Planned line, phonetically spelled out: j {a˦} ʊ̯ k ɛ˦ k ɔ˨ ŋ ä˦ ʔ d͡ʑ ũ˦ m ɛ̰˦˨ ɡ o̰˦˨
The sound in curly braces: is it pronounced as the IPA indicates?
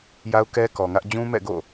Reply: yes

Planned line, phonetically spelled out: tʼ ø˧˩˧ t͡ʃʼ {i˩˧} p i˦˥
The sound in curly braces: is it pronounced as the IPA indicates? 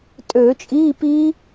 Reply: no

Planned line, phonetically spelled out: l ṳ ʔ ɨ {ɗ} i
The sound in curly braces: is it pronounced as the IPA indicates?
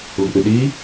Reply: yes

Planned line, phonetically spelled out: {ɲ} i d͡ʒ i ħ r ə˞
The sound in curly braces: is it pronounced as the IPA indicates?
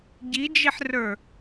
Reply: no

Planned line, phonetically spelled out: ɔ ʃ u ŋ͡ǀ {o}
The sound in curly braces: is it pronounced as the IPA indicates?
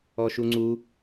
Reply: no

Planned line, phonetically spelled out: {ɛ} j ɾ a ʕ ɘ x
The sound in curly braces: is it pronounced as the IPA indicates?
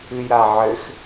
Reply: no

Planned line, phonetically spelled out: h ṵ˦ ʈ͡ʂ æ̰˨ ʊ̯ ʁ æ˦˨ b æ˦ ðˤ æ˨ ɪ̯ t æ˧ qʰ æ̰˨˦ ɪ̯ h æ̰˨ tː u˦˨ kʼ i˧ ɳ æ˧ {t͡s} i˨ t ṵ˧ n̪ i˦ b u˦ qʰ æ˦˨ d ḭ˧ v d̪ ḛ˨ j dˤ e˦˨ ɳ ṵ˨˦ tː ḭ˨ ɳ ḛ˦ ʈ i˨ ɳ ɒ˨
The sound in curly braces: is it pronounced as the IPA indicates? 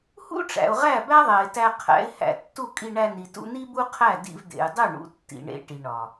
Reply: no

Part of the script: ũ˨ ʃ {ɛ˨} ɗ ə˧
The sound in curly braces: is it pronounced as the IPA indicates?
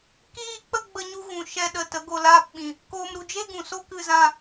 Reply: no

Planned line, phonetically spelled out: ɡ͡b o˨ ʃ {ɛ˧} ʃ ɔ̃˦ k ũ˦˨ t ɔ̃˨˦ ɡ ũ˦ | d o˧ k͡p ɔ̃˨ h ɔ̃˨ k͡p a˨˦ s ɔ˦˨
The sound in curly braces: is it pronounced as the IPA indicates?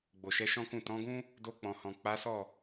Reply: no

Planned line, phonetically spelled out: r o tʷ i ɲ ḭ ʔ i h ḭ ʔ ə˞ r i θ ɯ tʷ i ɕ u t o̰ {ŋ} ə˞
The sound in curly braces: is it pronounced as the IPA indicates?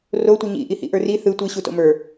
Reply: no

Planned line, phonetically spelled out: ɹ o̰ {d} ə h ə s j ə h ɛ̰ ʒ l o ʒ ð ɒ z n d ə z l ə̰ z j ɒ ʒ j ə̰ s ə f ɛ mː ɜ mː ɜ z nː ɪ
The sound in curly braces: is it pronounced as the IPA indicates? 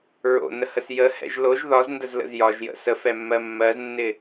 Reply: no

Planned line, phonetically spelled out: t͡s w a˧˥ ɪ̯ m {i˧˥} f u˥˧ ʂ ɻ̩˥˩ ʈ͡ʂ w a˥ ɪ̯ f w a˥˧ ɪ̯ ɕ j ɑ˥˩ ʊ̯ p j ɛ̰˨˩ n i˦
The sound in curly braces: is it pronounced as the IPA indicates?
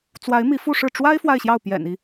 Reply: yes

